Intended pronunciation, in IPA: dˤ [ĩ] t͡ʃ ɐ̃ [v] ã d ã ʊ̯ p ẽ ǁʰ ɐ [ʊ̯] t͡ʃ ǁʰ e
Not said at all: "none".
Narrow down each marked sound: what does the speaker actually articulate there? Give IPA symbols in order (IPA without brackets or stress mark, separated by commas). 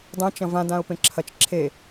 ẽ, v, none